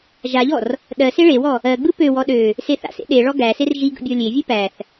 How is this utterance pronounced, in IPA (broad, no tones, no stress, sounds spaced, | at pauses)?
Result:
ʒ a ʎ ɔ r | ɗ ɜ s e ɭ e w ɔ | ɜ ɡ͡b ɯ p ø w ɔ ɗ ø | s e θ a̰ s ḛ ɗ e ɭ ɔ ɡ æ s e r ʒ i ɡ ə̰ bʲ ɔ lʲ e vʲ ɯ p æ θ